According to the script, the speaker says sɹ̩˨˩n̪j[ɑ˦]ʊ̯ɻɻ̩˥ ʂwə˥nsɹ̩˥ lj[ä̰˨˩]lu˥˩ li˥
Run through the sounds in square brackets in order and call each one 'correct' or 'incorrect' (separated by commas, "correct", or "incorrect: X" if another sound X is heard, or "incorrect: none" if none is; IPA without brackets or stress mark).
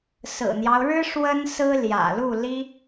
correct, correct